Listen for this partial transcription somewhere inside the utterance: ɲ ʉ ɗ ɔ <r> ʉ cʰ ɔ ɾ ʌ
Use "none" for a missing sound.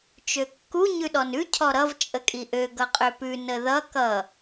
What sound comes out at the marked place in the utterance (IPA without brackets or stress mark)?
n